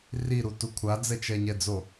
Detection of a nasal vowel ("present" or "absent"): absent